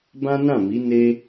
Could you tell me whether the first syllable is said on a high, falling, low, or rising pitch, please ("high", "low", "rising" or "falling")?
high